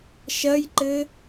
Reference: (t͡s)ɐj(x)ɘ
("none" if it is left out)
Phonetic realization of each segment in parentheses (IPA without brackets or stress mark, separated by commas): ʃ, ǃ